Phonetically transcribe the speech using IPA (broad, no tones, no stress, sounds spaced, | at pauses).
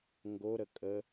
ŋ ɡ o ɾ ə kʼ ə